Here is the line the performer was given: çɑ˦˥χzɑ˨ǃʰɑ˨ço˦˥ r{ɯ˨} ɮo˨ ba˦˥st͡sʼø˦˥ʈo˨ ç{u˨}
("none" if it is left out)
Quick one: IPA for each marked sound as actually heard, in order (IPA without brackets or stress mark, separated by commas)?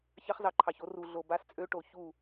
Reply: u˨, u˥˨